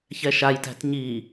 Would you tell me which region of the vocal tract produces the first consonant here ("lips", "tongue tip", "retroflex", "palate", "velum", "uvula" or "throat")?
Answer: palate